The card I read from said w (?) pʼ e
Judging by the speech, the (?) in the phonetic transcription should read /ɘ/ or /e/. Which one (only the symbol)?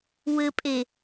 ɘ